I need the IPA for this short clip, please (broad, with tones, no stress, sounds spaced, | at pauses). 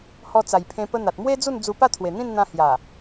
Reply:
h ɔ˧ t͡s a˨˩ j pʰ ẽ˧ p ə˧ n̪ a˨ t̚ m w e˦ d͡z u˥˧ n d͡z u˧ p a˥˧ t̪ʰ w e˨˩ n̪ ĩ˥˧ n n̪ ã˧ h j a˨˩